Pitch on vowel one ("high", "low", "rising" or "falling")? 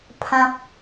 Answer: low